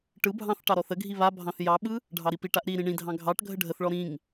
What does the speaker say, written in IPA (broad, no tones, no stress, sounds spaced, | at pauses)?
ʈ ɯ bʱ ɑ̃ θ ʈ ɑ ɾ ɔ θ ə ɡʱ i β a bʱ ɑ̃ θ j ɑ ɓ ɯ | ɖʱ ɑ ɾ i p i ʈ a ʔ ɾ i ɾ ĩ ɳ ĩ dʱ ɑ̃ ɡʱ ɑ ʈ ɡʱ ə ɖʱ ə θ ɭ ɔ ɾ ĩ ŋ